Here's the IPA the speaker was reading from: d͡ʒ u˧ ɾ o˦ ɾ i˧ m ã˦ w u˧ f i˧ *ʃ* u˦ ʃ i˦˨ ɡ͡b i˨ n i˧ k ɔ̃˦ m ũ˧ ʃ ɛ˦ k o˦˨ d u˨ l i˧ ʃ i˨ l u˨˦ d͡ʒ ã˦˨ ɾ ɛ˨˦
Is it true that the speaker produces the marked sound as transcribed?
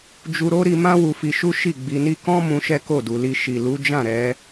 yes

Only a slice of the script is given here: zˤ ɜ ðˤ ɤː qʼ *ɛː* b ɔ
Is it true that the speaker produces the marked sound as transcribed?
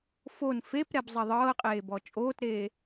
no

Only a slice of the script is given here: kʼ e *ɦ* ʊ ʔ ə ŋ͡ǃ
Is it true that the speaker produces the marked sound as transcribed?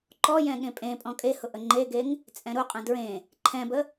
no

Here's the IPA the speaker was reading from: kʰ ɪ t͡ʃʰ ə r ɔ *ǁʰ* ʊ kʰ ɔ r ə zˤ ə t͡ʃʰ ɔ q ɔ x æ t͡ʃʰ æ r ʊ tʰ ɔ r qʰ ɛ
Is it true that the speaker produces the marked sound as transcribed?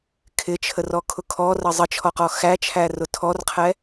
no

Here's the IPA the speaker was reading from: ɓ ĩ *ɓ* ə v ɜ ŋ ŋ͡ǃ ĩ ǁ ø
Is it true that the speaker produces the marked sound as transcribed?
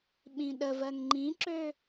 no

